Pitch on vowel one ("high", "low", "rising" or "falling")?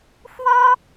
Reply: high